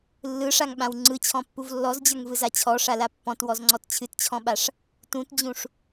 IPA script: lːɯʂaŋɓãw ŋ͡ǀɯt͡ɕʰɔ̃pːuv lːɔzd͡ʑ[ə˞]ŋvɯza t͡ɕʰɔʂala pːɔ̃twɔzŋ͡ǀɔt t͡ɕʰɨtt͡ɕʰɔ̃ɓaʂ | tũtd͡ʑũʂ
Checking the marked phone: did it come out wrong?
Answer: no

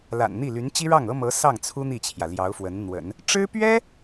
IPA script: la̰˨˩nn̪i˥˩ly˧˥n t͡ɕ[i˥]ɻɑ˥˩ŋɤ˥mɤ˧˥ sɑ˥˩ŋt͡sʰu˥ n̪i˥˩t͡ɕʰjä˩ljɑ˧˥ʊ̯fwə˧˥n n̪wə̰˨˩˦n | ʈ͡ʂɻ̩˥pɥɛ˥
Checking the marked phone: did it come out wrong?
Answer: no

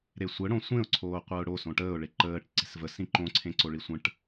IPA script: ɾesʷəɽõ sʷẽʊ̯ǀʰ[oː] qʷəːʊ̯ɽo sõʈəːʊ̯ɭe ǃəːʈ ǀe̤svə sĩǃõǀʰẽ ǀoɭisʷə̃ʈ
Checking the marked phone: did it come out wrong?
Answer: no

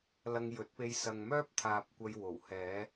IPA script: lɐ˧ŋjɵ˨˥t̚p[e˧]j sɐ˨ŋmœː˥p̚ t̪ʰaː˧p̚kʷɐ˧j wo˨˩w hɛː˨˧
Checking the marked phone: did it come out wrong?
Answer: no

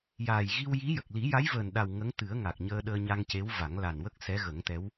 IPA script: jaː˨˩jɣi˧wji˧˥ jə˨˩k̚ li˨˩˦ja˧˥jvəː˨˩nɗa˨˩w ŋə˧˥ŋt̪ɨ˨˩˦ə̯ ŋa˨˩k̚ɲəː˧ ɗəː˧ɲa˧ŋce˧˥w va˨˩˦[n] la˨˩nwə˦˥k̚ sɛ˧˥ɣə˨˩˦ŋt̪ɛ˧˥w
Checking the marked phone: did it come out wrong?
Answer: yes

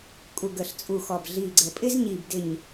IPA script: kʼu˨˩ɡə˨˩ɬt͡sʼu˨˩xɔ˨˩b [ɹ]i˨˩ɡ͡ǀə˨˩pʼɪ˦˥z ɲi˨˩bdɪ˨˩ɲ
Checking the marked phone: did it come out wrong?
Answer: yes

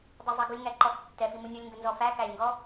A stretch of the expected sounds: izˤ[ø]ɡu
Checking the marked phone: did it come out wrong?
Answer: yes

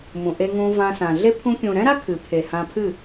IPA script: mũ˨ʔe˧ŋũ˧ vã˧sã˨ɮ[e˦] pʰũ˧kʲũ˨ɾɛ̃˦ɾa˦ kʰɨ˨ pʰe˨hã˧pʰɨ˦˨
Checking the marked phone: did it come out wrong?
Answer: no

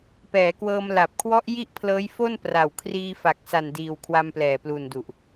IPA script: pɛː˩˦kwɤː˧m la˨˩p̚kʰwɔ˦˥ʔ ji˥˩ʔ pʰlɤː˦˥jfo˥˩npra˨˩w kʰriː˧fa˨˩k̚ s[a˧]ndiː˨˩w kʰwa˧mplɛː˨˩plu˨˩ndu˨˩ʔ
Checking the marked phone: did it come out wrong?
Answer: yes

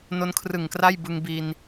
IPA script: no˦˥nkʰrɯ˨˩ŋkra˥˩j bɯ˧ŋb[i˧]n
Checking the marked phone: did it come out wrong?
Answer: no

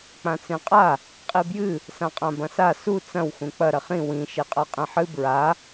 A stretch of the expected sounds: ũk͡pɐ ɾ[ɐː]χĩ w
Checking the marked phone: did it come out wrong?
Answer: yes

